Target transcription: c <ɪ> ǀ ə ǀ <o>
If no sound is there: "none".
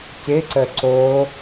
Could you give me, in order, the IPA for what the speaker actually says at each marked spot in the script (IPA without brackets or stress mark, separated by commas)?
ɪ, o